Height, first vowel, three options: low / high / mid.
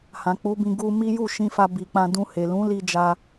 low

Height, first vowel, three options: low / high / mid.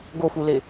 mid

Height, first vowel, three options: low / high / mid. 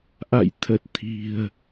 low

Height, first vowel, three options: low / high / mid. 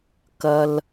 low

